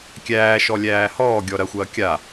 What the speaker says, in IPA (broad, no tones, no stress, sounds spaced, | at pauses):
kʲ æː ʃ ɔ lʲ æː h ɔː ɡʲ ɔ ɾ ɐ xʷ ɐː kʲ a